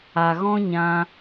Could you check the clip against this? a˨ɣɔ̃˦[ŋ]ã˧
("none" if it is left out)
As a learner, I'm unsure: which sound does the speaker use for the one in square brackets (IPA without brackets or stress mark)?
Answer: ɲ